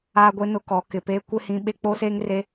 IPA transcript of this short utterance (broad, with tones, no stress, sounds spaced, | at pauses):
aː˦ ɡʷ e˦ n ʊ˦ k ɔ˨˦ k ɪ˨ p eː˦ kʷ ɪ˦ h ĩ˦ ɓ e˦ k͡p o˦ s eː˦ ŋ r e˦